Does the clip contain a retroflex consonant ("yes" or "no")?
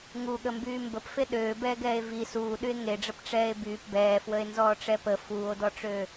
yes